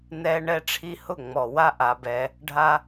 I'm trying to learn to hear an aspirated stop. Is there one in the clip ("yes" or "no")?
yes